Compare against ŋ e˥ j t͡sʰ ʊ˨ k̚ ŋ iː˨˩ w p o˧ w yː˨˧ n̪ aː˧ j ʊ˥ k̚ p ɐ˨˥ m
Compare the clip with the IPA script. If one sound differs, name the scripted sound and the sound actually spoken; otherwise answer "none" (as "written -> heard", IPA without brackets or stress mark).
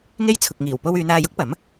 none